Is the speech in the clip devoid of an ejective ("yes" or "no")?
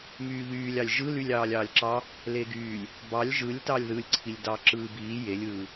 yes